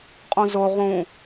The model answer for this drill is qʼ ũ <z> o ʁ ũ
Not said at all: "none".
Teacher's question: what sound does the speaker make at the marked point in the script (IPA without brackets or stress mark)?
z